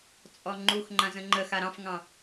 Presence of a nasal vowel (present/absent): present